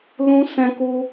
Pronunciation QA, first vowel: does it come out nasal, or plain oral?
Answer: nasal